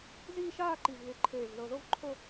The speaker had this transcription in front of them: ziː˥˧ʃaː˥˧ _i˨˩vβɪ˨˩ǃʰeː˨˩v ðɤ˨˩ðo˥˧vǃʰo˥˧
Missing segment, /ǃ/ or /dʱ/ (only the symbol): ǃ